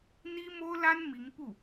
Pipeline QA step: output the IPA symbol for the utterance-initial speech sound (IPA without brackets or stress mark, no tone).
n̪